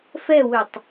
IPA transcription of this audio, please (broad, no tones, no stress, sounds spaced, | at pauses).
f ɛ w ø tˤ